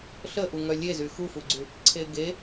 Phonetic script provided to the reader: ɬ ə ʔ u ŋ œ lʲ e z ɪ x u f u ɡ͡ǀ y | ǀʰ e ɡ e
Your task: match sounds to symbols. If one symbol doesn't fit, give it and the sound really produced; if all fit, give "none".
ɪ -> y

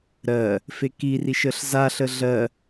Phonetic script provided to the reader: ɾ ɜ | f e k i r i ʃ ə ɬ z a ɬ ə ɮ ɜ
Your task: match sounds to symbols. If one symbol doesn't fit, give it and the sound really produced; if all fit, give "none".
none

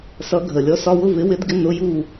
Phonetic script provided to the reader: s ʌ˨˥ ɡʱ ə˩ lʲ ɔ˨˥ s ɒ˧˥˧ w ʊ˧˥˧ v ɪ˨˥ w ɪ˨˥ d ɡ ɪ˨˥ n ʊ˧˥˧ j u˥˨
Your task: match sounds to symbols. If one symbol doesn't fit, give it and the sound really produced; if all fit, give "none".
none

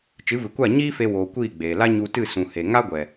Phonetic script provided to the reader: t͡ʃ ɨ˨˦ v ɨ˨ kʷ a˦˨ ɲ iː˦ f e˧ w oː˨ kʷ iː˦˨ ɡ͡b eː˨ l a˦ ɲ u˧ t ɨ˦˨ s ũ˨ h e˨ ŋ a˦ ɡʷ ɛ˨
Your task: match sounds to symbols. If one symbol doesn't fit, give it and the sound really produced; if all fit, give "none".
none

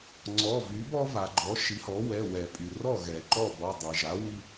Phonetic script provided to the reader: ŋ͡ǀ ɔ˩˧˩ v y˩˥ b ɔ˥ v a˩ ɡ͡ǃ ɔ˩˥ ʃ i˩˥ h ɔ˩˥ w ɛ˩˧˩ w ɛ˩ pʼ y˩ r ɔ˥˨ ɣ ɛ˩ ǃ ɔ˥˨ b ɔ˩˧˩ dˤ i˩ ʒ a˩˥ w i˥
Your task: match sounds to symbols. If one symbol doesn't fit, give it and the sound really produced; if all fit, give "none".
none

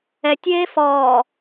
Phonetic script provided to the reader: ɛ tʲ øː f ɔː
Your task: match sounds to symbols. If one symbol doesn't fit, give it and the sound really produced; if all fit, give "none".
øː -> eː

